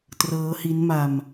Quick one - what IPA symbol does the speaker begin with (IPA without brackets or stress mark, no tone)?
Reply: t